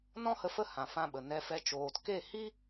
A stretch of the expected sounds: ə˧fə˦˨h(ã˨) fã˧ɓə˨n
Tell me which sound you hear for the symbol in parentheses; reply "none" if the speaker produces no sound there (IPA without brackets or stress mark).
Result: ã˨